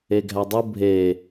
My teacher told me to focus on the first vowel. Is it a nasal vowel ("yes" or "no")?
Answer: no